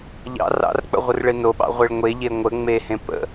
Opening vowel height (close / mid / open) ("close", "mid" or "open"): open